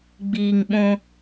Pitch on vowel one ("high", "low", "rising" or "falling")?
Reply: low